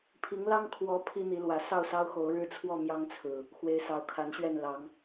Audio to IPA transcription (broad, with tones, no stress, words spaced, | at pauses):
pʰi˨˦ŋlɑ˦ŋ kʰwɔ˨˦ pʰi˦n̪i˨˦lwä˨˦ sɑ˥˨ʊ̯sɑ˦ʊ̯xo˨˦ʊ̯ɻɻ̩˦ t͡sʰwɔ˥˨mjɑ˦ŋt͡sʰɹ̩˨˩ | xwe˨˦ɪ̯sɑ˨˦ʊ̯kʰa˨˦nɕɥɛ˥˨n lɑ˨˦ŋ